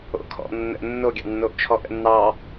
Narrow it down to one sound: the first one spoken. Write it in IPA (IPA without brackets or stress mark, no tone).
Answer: o̰